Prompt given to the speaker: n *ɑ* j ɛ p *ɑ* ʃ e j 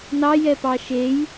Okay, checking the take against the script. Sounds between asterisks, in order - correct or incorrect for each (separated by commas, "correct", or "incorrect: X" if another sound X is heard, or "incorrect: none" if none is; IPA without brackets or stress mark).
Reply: correct, correct